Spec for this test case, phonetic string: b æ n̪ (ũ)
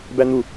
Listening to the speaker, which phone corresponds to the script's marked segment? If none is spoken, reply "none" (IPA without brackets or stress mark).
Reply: u